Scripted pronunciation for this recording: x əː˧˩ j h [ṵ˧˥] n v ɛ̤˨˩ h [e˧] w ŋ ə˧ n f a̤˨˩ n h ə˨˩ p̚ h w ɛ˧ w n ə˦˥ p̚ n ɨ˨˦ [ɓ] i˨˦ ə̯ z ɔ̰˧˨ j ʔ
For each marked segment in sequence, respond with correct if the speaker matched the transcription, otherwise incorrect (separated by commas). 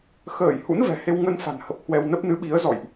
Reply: correct, correct, correct